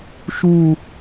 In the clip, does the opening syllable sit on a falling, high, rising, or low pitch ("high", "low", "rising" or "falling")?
falling